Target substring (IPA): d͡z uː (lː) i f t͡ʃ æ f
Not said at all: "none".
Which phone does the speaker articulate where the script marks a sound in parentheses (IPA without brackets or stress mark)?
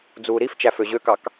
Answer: ɾ